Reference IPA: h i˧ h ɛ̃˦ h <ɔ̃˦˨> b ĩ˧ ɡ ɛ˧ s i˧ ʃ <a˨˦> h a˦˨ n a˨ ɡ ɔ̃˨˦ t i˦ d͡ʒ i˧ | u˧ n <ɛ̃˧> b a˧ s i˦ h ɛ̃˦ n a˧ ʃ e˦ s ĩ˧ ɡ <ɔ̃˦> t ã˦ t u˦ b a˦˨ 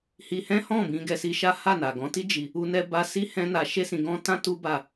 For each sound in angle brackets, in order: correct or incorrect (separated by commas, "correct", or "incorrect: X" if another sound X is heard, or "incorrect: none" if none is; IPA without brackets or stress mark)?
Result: correct, incorrect: a˦, incorrect: ɛ˧, correct